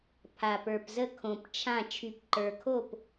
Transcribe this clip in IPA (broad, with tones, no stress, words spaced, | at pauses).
pʰa˨˩pə˞˨˩pzə˥˨ kʰõ˨˩pt͡ʃʰã˥˨ t͡ʃʰy˨˩pǃə˞˨˩kʰo˥˨p